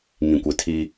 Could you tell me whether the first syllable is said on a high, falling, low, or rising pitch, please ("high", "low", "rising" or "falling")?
low